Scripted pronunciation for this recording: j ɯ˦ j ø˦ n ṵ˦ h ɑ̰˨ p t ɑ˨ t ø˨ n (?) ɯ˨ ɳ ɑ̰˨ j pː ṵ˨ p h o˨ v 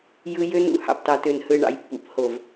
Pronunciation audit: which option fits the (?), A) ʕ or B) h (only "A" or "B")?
B